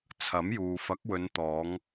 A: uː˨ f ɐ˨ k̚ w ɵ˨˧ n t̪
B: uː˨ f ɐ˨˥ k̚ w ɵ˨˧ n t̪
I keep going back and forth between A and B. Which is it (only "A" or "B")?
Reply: B